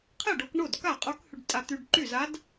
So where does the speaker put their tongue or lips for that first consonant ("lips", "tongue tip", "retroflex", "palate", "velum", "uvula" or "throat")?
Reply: uvula